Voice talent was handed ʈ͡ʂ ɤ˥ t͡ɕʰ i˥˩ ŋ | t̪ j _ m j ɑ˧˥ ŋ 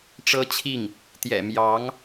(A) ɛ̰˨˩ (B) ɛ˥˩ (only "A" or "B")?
A